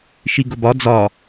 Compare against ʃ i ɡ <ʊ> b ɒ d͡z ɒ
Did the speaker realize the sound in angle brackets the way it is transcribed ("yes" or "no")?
yes